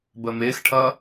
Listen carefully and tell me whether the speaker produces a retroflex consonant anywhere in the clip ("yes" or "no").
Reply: yes